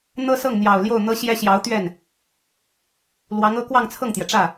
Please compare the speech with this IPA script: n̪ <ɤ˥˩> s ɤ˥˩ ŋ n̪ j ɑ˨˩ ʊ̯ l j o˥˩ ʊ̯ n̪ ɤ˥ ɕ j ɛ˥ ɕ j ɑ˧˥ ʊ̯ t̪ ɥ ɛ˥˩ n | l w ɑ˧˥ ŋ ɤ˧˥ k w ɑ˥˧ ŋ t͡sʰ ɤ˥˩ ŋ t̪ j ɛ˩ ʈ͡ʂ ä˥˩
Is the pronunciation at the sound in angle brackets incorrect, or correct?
incorrect